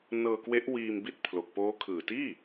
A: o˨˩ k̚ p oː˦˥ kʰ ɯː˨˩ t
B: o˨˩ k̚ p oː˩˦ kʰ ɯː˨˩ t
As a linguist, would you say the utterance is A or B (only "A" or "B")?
A